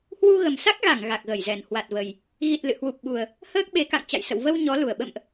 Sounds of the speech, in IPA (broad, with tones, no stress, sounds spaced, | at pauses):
h w u˧ ɣ ə˨˩ m s a˦˥ k̚ ɣ a˧˩ ŋ ɣ a˨˩ k̚ ɣ ə˧˩ j z ɛ˨˩ n h w a˨˩ t̚ v ə˨˩ j | ɣ i˨˩ t̚ l ɨ̰˧˨ h w u˨˩ p̚ ɓ u˨˩ ə̯ | h əː˦˥ k̚ ɓ e˨˦ k a̰˧˨ ŋ t͡ɕ a̰˧˨ j s ə̰˧˨ w v ə˧ w ɲ ɔ˨˦ l u˧˩ ə̯ ɓ ə̰˧˨ m ʔ